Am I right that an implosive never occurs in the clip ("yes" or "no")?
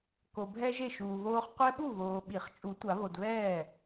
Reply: no